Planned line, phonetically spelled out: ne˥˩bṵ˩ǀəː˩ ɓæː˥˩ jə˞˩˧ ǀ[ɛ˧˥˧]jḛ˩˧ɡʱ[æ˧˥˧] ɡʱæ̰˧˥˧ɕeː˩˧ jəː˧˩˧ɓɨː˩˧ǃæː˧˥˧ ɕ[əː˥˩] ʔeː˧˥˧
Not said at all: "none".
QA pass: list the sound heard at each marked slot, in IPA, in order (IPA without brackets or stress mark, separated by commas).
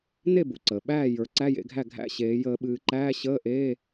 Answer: æ˧˥˧, æ˥˩, əː˧˥˧